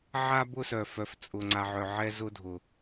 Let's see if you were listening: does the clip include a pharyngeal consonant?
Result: yes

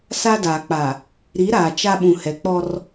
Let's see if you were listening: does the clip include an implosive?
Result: yes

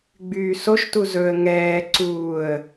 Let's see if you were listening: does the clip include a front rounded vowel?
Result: yes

